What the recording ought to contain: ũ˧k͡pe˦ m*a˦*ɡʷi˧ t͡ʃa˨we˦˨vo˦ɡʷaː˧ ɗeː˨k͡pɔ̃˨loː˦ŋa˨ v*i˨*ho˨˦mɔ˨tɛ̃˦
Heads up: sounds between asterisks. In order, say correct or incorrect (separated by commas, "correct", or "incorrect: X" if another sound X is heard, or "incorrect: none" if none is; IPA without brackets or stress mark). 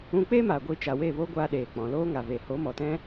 incorrect: a˨, incorrect: e˨